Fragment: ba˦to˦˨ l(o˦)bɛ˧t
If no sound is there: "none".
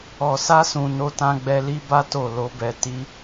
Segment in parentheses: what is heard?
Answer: o˧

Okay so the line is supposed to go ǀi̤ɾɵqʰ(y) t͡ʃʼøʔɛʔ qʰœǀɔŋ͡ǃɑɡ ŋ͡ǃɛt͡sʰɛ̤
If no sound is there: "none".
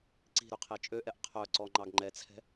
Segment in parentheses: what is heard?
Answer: e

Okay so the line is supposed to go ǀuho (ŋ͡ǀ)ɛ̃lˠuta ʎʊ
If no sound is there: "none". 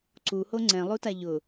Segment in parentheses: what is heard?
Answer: ŋ͡ǀ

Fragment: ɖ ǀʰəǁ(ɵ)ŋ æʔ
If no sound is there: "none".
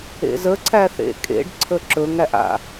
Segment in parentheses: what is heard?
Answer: ɵ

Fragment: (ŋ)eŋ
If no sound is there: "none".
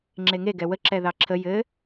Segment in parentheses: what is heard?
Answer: ŋ͡ǁ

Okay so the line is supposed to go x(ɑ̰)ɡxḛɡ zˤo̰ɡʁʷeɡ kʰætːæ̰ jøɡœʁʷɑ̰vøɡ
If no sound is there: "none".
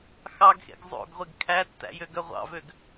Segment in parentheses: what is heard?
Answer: ɑ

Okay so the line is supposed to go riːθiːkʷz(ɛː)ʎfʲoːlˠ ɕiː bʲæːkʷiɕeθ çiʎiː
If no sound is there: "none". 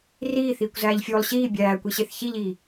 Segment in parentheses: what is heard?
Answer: æː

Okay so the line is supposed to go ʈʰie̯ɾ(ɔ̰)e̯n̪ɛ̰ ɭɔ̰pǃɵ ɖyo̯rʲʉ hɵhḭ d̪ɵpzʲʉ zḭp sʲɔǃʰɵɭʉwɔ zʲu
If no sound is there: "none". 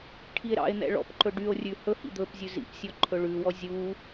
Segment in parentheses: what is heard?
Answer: ɑ̰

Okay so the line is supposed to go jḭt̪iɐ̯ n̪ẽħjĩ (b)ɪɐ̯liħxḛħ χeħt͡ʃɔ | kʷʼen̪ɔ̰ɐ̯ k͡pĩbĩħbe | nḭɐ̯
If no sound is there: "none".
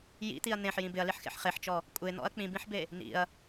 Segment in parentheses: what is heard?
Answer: b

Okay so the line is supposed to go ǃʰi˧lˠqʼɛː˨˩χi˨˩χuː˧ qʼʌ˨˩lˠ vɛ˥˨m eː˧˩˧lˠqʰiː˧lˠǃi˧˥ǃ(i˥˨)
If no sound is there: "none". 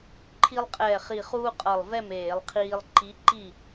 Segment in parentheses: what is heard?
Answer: i˥˨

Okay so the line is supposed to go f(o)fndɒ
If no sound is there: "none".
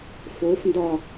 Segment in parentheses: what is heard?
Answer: o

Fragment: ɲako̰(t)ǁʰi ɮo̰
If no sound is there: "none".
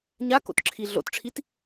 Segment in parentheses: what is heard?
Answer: t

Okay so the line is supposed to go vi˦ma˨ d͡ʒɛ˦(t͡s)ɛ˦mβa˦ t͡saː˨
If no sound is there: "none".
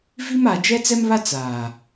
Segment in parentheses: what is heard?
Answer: t͡s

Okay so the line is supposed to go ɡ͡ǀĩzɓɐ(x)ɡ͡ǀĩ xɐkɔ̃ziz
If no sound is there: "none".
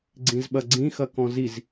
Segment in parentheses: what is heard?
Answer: none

